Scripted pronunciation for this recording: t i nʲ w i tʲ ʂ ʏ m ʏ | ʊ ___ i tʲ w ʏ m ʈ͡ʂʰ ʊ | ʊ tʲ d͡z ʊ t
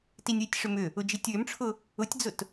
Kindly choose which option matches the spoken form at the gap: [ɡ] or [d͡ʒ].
d͡ʒ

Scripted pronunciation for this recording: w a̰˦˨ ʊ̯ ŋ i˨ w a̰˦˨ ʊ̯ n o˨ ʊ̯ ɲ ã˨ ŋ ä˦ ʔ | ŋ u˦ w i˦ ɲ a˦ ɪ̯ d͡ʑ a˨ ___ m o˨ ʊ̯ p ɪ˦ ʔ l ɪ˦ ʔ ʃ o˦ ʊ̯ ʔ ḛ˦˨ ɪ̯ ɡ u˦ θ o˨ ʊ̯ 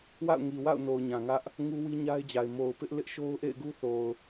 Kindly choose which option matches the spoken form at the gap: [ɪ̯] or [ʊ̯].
ɪ̯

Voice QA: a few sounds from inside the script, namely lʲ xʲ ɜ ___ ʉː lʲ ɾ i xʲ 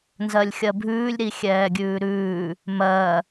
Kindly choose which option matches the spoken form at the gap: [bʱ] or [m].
bʱ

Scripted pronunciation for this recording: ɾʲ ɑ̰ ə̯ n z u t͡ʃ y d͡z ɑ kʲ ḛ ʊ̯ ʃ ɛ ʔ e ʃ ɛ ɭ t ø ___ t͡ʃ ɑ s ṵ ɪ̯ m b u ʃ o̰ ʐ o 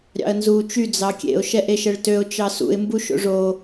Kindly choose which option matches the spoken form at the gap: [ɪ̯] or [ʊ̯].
ʊ̯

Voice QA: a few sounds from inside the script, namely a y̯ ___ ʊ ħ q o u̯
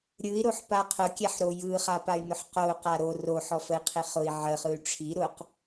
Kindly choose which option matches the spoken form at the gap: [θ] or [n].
n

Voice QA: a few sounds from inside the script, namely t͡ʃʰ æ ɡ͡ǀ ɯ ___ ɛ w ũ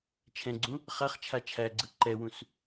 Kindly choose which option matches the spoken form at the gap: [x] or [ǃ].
ǃ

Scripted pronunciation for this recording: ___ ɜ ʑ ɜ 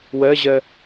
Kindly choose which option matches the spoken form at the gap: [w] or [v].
w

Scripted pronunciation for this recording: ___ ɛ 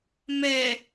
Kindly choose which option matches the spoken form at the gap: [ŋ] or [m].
m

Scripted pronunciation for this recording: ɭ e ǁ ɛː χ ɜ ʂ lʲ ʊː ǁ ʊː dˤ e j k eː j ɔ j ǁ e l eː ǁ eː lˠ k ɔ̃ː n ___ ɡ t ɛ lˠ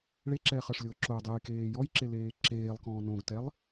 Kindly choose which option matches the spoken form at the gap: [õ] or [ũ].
õ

